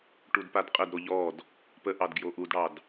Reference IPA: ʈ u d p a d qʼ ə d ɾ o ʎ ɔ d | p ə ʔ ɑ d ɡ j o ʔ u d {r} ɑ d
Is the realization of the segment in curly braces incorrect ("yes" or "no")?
yes